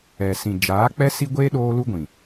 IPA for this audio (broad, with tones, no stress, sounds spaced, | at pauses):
ɛ˨ s ĩ˨ d͡ʒ aː˨˦ k͡p ɛ˦ s i˦ ɡʷ eː˦ ɗ oː˦ l u˦ ɡʷ ĩ˨